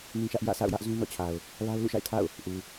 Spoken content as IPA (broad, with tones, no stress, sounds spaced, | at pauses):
n ĩ˦ ʃ ä˦ ʔ j ä̰˦˨ sʰ a̰˦˨ ʊ̯ j ä˦ ʔ z ũ˦ n ɔ̰˦˨ t͡ɕʰ a˨ ʊ̯ | l a˦ ʊ̯ l ṵ˦˨ ʃ a̰˦˨ ɪ̯ tʰ a̰˦˨ ʊ̯ | ʔ u˨